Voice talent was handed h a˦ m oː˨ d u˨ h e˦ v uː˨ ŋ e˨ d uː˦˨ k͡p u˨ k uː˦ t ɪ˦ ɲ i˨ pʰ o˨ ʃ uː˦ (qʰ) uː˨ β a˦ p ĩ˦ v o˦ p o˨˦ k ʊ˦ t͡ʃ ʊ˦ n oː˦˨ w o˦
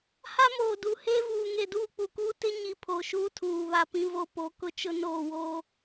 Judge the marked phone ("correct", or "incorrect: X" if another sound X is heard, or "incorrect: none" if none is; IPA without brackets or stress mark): incorrect: tʰ